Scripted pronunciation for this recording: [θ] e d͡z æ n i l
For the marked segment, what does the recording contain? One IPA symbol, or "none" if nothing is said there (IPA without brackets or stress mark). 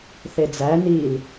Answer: θ